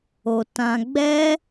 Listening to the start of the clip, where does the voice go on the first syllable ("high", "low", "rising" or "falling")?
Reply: low